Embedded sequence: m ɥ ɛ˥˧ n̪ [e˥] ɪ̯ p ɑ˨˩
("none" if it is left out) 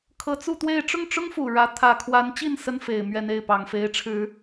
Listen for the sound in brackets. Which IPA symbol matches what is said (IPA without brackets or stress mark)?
e˥˩